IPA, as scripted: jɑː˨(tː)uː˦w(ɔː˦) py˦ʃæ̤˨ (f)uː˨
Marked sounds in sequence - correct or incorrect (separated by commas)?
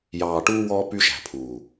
incorrect, correct, incorrect